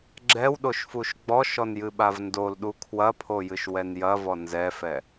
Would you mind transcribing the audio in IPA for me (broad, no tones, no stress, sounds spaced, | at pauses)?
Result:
ɡ͡ǁ ɛ w ɗ o ʃ f u ʃ ɡ͡b ɔ ʃ ɔ n j ɨ ɓ a v n d o l ɗ u kʰ w ɐ pʰ o j ɨ ʃ w ɛ n j ɐ v ɔ n z ɛ f ɛ